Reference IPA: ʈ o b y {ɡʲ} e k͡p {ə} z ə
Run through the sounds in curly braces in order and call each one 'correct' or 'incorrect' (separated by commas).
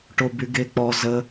incorrect, incorrect